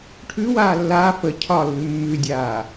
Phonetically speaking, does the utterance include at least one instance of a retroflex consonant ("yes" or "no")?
yes